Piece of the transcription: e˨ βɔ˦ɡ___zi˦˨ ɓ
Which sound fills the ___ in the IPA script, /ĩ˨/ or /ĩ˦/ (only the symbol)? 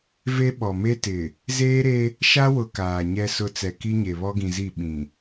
ĩ˨